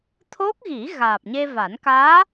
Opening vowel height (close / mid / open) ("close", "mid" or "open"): mid